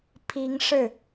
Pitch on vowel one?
rising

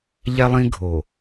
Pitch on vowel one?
high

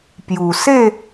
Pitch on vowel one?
low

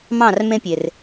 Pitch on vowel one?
falling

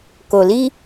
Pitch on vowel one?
low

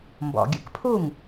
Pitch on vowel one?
low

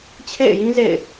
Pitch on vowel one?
falling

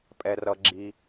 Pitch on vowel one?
low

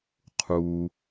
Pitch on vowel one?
low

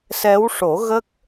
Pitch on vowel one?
rising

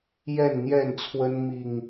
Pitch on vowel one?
falling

